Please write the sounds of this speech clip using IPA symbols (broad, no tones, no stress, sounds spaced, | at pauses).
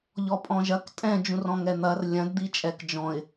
ʎ ɔ pʼ ɔ̃ ʒ ɐ k tʼ ɛ̃ d͡ʒ ũ r ɔ̃ ŋ ɛ n̪ ɐ r lʲ ɐ̃ d d̪ i t͡ʃʼ ɛ k d͡ʒ ɔ̃ ɪ̯